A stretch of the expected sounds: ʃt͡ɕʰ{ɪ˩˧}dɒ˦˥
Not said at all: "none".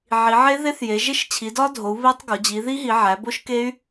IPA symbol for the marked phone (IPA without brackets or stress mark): i˩˧